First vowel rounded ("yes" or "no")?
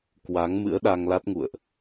no